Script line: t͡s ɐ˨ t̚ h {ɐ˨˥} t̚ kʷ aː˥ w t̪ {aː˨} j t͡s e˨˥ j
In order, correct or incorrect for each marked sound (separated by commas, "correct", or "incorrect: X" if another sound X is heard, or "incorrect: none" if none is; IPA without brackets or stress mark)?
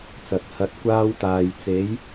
incorrect: ɐ˧, correct